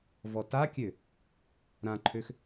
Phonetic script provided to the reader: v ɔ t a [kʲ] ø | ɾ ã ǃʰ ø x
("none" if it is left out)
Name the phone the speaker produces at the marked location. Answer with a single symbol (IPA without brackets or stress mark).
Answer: kʲ